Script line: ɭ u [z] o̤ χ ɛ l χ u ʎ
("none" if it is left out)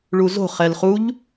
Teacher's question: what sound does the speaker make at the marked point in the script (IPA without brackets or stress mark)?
z